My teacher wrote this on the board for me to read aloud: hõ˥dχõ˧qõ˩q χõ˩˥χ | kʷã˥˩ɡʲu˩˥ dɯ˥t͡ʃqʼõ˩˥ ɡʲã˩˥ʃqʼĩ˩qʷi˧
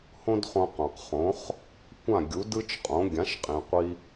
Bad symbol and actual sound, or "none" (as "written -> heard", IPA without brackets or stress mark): none